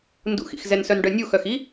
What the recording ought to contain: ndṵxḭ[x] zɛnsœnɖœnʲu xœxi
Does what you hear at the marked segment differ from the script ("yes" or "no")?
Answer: no